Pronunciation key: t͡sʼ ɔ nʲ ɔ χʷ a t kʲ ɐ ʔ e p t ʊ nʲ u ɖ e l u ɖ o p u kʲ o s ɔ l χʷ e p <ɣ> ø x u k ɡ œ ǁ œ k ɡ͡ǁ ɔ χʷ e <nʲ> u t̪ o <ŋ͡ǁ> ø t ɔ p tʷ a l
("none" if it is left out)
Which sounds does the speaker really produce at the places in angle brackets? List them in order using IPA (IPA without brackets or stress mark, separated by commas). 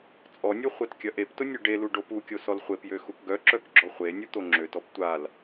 j, nʲ, ŋ͡ǁ